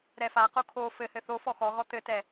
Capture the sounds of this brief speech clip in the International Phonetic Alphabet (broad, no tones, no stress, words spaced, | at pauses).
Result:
ɾɛfaqo kʰo fɘhɘ θo fɔxɔɣɔ t̪ɘtɛ